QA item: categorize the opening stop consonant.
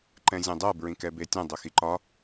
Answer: click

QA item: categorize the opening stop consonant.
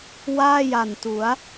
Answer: plain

